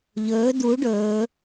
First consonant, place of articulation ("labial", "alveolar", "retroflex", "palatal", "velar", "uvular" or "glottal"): palatal